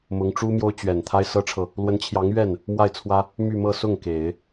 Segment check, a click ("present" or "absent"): absent